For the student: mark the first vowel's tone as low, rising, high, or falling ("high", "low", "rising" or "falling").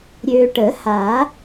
low